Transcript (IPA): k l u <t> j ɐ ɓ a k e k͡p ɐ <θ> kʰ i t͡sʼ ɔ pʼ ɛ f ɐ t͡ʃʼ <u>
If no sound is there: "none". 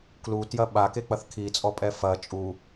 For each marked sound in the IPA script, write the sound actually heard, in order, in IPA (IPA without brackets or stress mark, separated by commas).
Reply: t, θ, u